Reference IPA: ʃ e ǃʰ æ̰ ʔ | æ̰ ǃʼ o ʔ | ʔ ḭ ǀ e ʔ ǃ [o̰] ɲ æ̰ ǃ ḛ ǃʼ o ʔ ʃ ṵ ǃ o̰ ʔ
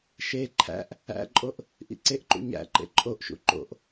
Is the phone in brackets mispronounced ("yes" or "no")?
yes